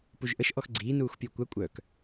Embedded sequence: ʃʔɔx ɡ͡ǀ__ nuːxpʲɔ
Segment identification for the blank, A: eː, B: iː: B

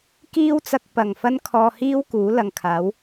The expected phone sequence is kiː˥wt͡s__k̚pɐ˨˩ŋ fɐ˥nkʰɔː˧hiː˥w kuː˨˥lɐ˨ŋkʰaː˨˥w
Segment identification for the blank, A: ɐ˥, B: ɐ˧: B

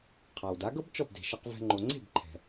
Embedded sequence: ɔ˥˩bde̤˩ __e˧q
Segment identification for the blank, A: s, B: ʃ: B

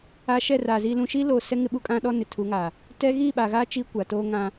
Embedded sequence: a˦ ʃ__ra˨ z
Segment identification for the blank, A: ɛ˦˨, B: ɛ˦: A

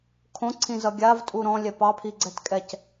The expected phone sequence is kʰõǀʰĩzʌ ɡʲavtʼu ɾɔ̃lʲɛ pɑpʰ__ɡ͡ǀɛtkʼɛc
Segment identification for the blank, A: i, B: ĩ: A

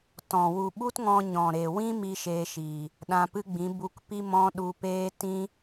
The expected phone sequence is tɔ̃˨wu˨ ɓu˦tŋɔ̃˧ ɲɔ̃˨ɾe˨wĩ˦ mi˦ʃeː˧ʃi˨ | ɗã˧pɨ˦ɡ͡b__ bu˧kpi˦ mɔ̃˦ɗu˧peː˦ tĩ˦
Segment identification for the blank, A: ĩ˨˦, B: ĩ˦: A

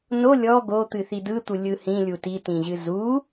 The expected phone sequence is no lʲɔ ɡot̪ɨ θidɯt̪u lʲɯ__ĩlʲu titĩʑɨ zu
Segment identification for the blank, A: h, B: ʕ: A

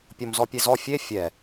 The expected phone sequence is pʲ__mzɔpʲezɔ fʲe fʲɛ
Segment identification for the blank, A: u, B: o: B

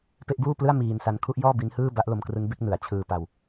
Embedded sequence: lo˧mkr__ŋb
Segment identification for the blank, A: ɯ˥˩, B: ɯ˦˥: B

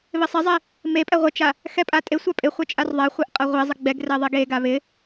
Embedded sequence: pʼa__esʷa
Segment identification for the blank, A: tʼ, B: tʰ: A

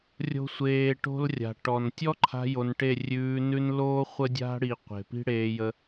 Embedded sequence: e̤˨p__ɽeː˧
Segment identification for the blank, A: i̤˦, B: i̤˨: A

